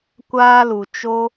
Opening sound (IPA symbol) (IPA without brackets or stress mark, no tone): kʷ